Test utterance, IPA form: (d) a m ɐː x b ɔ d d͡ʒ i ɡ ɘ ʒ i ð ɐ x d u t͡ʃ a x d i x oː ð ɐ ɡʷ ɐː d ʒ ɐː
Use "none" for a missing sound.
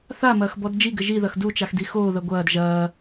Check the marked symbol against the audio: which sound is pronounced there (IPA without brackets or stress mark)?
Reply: θ